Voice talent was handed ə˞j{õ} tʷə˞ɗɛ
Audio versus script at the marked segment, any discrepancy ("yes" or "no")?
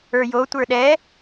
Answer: yes